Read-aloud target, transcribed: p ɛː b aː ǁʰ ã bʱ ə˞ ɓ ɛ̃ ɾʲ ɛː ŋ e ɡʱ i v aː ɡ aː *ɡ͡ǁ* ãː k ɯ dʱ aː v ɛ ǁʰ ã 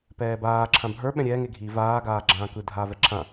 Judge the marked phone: correct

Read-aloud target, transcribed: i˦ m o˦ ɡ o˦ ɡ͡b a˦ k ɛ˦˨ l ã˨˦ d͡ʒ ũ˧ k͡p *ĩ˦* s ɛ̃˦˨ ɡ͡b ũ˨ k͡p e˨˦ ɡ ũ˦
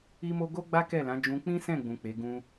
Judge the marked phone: correct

